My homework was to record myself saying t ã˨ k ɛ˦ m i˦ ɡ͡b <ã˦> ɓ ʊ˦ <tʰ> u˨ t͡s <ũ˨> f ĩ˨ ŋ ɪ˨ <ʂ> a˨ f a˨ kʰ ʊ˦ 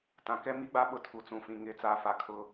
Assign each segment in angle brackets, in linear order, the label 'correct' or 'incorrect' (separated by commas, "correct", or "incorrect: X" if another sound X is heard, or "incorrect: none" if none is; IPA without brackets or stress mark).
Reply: incorrect: a˦, correct, correct, incorrect: t͡s